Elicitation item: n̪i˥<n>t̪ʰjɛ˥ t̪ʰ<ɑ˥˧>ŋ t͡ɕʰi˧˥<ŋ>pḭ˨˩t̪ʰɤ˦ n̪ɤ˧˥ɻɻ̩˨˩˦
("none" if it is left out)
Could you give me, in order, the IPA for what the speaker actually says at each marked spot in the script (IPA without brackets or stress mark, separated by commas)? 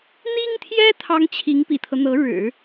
ŋ, ɑ˥, ŋ